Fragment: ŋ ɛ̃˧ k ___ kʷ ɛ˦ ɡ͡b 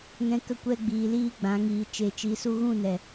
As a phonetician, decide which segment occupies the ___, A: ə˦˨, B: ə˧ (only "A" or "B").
A